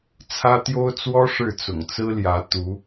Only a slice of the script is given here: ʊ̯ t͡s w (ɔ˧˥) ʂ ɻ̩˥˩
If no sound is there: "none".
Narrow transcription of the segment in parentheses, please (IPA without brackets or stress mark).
ɔ˥